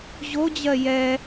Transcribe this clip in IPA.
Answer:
ʑ o d͡ʑ ɜ j ɛ

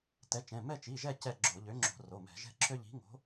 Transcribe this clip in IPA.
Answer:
t ɛ˨˥ t͡ʃ ɛ̃˩˧˩ m ɛ˦˨ t͡ʃ i˩˧˩ ʒ ɛ˦˨ c ɛ˦˨ ɡ͡ǁ o˧˩˧ ʎ ø˨˥ ŋ͡ǁ o̤˧˩˧ r o˩˧˩ m ɛ̤˧˩˧ ʒ ɛ̤˦ ǁʰ ø˦ ʎ i̤˨˥ ŋ o̤˨˥

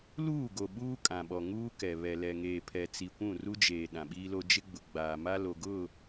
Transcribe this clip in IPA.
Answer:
l uː˦˨ ɡ o˨ ɓ uː˦ kʼ ã˨ ɓ ɔ˨ ŋ uː˦ k ɛ˨ β ɛ˨ l ɛ˨ ŋ eː˨ pʰ ɛ˨ t͡s i˨ kʷ ũ˦˨ r u˦ d͡ʒ eː˨ ɗ ã˨ ɓ iː˦ l o˦ d͡ʒ ɪ˦ ɡ͡b ʊ˨ ɡ͡b aː˨ m a˦ l o˨ ɡ ʊ˦˨

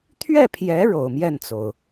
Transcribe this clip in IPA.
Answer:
t̪ʰ ɥ ɛ˥˩ pʰ j ɛ˧˥ ɻ o˨˩ ʊ̯ m j ɛ˥˩ n t͡s o˩ ʊ̯

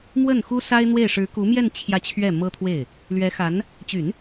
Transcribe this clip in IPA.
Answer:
m w ə˥˩ n x u˥ s a˥ ɪ̯ n̪ w e˥˩ ɪ̯ ʂ ɻ̩˧˥ k u˧˥ m j ɛ˥˧ n t͡ɕʰ j ä˥˧ t͡ɕʰ ɥ ɛ˥˩ m ɤ˥ t̪ʰ w e˥˩ ɪ̯ | l ɥ ɛ˧˥ x a˧˥ n | t͡ɕ y˨˩˦ n

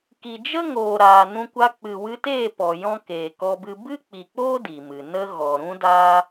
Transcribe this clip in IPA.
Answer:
k i˨ d͡ʒ ə˦ ŋ oː˨ ɾ aː˨ n ũ˧ kʷ a˧ k͡p ɨ˨ w ɨ˧ t eː˦˨ p ɔ˨ j ɔ̃˦ k eː˨ k ɔ˧ b ɨ˧ b ɨ˦ k͡p i˨ k͡p oː˦ d i˨ m ɨ˨ n ə˧ ɣ ɔ˨ ɾ ũ˦ d aː˦

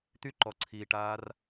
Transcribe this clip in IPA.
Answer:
t̪ y ǃ ɔ ǀʰ iː ʈ aː r

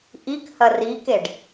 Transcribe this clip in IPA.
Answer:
ʔ i k h ɐ r i k e ɖ

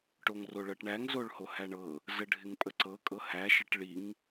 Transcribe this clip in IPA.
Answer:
ʈ o ŋ r o ɭ ɤ ʈ ɳ æ ŋ z o ɭ h o h æ ɳ ɤ | z ə ɖʱ ɪ ŋ pʼ ə ǀ ɤ kʼ ɤ h æ ʃ ə ʈ ɭ i ŋ

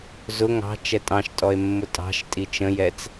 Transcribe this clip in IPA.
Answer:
z ʊ ŋ ɑ̤ t͡ʃ ɛ tʼ ɑ̃ ʃ tʼ ɔ e̯ mː ʊ tʼ ɑ̤ ʃ tʼ i t͡ʃ ə̃ j ɛ t͡s

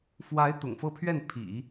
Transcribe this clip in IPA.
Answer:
f w a˧˥ ɪ̯ t̪ ʊ̰˨˩ ŋ f ɤ˥˧ pʰ ɥ ɛ˥˩ n pʰ ḭ˨˩˦

